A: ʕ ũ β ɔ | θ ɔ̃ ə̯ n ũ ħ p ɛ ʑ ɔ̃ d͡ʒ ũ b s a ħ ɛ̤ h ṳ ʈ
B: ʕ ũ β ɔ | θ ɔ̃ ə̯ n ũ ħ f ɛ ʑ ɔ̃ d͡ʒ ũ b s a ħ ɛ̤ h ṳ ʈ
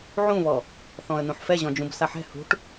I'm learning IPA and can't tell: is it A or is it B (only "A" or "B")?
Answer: B